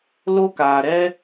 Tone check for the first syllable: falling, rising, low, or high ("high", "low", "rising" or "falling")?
high